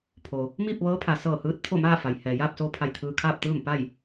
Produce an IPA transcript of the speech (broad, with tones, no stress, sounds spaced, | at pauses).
pʰ oː˩ | m iː˥˨ p̚ ʋ ɤː˧˥ pʰ a˩ s ɤː˧˩ h ɯː˧˥ t̚ t̪ʰ o˥˨ m aː˥˨ f a˩ j h ɛː˩ j aː˥˨ p̚ s oː˧ pʰ a˧˩ j t̪ʰ ɯː˧ kʰ aː˥˨ p̚ t̪ ɯː˥˨ m p a˥˨ j